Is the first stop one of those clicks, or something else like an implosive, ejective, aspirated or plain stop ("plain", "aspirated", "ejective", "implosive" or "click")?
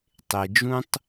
plain